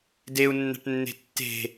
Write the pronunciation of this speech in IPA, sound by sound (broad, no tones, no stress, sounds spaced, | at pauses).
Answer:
d e u̯ nː æ̤ ʈ nː e̤ tː e̤